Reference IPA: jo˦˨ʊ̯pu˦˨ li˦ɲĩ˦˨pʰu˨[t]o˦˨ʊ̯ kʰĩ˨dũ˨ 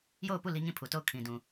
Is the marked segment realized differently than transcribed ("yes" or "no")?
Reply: no